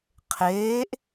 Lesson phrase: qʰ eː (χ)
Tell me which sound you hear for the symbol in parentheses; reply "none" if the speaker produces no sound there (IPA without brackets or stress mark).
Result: ʔ